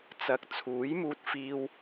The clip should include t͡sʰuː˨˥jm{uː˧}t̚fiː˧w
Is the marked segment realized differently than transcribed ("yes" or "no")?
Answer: no